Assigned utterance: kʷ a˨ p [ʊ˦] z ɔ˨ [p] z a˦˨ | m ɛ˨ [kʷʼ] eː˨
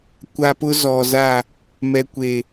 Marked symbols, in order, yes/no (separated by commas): yes, no, no